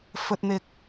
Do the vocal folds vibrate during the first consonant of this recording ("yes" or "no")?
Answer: no